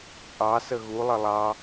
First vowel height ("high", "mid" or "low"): low